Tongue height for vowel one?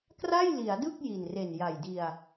low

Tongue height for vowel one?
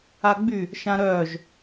low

